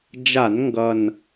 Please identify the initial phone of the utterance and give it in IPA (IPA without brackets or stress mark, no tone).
d͡ʒ